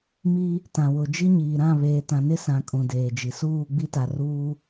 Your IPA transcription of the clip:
m iː˦ | t ã˨ w ʊ˨ d͡ʒ i˦ ɲ iː˨ ɾ ã˦˨ β eː˨ t ã˨ n ɪ˦ s ã˨ kʼ ũ˨ d eː˨ d͡ʒ i˨ s uː˦˨ ɡ͡b i˦ t a˨ r uː˦

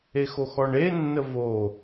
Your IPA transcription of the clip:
e x o x ɔ ɳ e nː ə v o

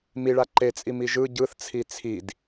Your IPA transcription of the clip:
m i ɭ a ǃ e t͡sʼ i m i ʒ ɯ ɟ ɯ θ t͡sʰ i t͡sʰ i d

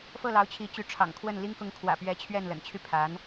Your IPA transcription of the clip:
f ɤ˥˩ l ɑ˧˥ ʊ̯ t͡ɕʰ i˧˥ t͡ɕ y˧˥ ʈ͡ʂʰ ɑ̰˨˩ ŋ kʰ w ə˥˩ n l i˥ ŋ k ʊ˧˥ ŋ kʰ w ä̰˨˩ p ɥ ɛ˧˥ t͡ɕʰ ɥ ɛ˥˩ n l ə̰˨˩ n t͡ɕʰ y˥˩ pʰ a˧˥ n

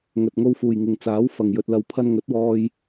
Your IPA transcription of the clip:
ŋ ɵ˨ t̚ ŋ o˧ w f uː˨ j ŋ ɪ˨ ŋ t͡s aː˨˥ w f ɐ˨ ŋ j ɵ˧ t̚ l ɐ˧ w pʰ ɐ˧ n ŋ ɵ˨˥ t̚ w ɔː˧ j

